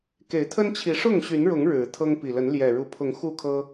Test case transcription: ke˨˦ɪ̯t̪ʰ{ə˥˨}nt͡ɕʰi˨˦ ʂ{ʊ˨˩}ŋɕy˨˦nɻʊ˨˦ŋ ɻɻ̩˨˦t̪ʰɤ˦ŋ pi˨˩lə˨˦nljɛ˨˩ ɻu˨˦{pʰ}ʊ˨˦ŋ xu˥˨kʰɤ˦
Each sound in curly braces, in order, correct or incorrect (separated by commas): incorrect, incorrect, correct